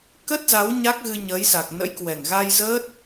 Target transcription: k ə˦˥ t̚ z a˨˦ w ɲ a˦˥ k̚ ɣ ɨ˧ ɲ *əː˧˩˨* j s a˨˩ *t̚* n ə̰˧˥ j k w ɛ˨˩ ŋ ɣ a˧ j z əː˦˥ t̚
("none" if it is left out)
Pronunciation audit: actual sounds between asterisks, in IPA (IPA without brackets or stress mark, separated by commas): əː˨˦, k̚